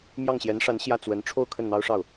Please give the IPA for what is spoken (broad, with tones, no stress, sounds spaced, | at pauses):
m j ɑ˥˩ ŋ ɕ j ɛ˧˥ n ʂ a˧˥ n ɕ j ä˥˩ t͡s w ə˧˥ n ʈ͡ʂʰ o˥˧ ʊ̯ kʰ ə˥˩ n n̪ ɑ˥ ʊ̯ ʂ ɑ˥˩ ʊ̯